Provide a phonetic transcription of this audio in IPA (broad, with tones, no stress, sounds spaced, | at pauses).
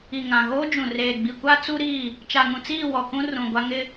i˨ ŋ ã˨ ɣ oː˦ d͡ʒ ũ˨ r eː˨ ɡ͡b i˨ kʷ a˦ t͡s u˦ ɾ iː˦˨ | t͡ʃ a˨ ŋ ũ˨ t͡s iː˦˨ w ɔ˨ k ũ˦ r ũ˨ ɡʷ a˦ ŋ ɪ˦